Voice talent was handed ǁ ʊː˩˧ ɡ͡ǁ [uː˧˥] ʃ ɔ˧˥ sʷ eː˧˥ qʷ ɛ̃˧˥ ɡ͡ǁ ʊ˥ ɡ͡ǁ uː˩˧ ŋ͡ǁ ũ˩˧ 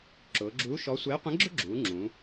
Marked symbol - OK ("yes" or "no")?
yes